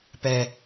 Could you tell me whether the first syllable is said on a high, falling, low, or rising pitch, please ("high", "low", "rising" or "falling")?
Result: low